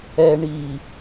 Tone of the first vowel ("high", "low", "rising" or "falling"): low